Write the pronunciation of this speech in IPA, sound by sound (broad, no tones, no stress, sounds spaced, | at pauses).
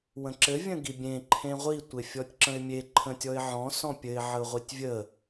w ə̃ ǁ ɘ vʲ ə̃ ɡ i bʲ ẽ ǃʰ ẽ ʁʷ i tʷ e fʲ ɔ tʲ ǁ ə̃ ɪ̯ mʲ e ǃʰ ə̃ tʲ ɔ ɪ̯ ʕ ɔ̃ s ɔ̃ pʲ ɘ ɪ̯ ʕ ə ʊ̯ ʁʷ i tʲ vʲ ə